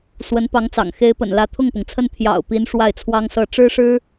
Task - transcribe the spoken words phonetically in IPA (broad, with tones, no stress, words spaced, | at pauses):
swə˧˥npɑ˧˥ŋt͡sɑ̰˨˩ŋ xe˧˥ɪ̯pə̰˨˩nlä˧˥ t̪ʰʊ˥˩ŋpʊ˩ŋt͡sʰə˥˩n t̪ʰjɑ̰˨˩ʊ̯pi˧˥n ʂwa˥˩ɪ̯t͡sʰwɑ˥ŋsɤ˥˩ ʈ͡ʂɻ̩˥ʂɻ̩˥